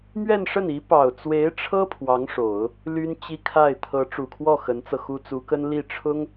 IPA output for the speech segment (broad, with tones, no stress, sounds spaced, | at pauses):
m ɥ ɛ˥˧ n ʂ ə˥˩ n i˧˥ p ɑ˨˩ ʊ̯ t͡s w e˧˥ ɪ̯ ʈ͡ʂʰ ɤ˥ pʰ w ɑ˧˥ ŋ ʂ o˨˩˦ ʊ̯ | l y˥ n t͡ɕ i˥ kʰ a˥˩ ɪ̯ t̪ʰ ɤ˧˥ ʈ͡ʂ u˨˩ kʰ w ɔ˥˩ x ə˧˥ n t͡s ɤ˧ x u˥ t͡s u˧˥ k ə˥ n l i˥˩ ʈ͡ʂʰ ʊ˥ ŋ